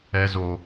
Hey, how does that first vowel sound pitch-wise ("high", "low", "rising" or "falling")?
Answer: high